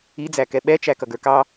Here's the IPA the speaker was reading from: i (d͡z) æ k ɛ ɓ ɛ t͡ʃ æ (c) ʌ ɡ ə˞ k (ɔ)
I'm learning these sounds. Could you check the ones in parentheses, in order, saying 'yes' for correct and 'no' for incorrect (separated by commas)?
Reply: yes, no, no